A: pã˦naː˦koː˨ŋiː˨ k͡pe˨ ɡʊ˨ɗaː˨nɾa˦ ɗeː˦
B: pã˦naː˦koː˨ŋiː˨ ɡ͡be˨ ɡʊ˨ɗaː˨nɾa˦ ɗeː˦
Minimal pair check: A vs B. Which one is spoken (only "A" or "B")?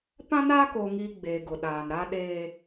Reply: B